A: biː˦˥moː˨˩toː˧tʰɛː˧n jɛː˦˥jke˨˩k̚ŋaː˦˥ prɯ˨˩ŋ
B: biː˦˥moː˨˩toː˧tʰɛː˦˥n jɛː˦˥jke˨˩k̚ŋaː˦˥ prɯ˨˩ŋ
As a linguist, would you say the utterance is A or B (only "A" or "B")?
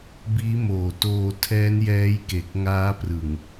B